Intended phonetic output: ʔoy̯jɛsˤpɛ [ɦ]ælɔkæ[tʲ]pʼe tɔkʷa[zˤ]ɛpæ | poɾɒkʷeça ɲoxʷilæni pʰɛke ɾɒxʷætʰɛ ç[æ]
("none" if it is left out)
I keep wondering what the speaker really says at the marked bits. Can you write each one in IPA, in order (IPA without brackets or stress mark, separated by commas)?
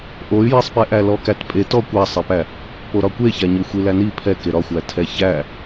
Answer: ʔ, t, sˤ, æ